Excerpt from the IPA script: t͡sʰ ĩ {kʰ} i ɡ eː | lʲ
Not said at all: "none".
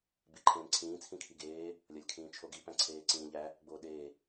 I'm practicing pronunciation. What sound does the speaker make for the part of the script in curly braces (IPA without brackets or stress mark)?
kʰ